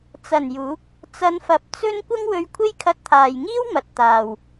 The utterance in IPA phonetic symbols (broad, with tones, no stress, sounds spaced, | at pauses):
t͡s ɐ˨˩ n j uː˨˥ k̚ | t͡s ɐ˨˧ n f ɐ˨ p̚ t͡s ɵ˥ n kʷ ɐ˥ ŋ w ɵ˧ ɥ kʷʰ e˥ j kʰ ɐ˧ t̚ t̪ʰ aː˨ j ŋ iː˥ w m ɐ˨ t̚ t̪ aː˨ w